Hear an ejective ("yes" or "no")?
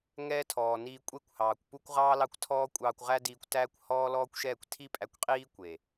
yes